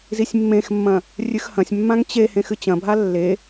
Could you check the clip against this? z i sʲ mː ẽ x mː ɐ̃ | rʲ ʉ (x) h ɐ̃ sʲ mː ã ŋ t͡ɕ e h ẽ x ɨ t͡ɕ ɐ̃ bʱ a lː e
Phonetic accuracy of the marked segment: correct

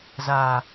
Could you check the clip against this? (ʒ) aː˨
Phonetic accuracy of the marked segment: incorrect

